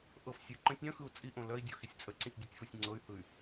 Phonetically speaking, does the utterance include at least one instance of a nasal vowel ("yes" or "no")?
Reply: yes